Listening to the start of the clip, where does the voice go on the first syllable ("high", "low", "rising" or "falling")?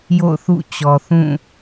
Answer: falling